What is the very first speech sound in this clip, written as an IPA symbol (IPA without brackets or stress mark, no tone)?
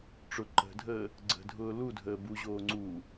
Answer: ʈ͡ʂ